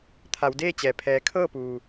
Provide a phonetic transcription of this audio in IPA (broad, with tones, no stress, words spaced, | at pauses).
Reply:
t̪ʰa˩˧wdeː˥˨t͡ɕɛː˩ pʰɛː˩kʰɤː˥˨puː˩